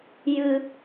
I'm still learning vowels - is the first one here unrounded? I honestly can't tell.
yes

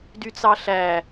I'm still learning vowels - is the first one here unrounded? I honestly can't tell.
no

